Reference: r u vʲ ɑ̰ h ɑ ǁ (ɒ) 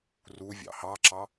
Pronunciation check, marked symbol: incorrect: ɑ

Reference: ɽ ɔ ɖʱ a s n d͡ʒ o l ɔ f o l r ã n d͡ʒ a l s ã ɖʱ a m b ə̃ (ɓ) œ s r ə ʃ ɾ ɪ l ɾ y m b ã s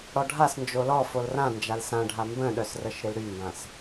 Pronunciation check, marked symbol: incorrect: ɗ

